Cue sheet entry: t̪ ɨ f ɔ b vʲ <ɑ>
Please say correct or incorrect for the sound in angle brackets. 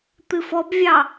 correct